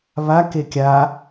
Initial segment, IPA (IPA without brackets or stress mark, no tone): β